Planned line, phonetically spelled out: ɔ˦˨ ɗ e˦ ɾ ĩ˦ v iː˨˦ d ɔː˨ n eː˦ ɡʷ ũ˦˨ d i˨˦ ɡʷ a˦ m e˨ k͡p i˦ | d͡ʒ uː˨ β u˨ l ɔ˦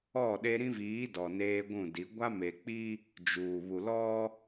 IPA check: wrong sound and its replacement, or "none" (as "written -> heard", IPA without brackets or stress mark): ɔː˨ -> ɔ˨